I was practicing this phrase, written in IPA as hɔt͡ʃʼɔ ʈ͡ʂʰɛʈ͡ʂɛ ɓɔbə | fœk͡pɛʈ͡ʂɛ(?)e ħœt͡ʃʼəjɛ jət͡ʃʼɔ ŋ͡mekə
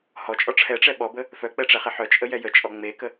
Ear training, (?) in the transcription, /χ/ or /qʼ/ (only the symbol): χ